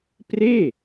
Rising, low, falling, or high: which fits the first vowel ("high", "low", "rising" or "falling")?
falling